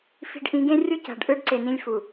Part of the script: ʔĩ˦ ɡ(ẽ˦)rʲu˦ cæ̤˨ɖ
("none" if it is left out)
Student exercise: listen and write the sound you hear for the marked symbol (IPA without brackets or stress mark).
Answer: ẽ˦